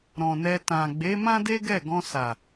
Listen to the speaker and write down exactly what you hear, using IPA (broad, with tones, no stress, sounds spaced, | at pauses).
ɾ ɔ̃˨ n ɛ˧ t ã˨ ɡ͡b e˨˦ m ã˦ d e˦ ɡ ɛ˦˨ ɡ ɔ̃˧ s a˨